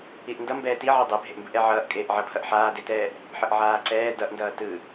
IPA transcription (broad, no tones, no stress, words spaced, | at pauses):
iʔndʌ mbɛːtiʕi dˤebʱeʔmbɯʔ ɛʕʌːʔ kʼeːʔʕʌpʰʌʔ ħaːdetɛːʔ | ħʌʔʕaːǀɛː dʌʔndʌː tɯ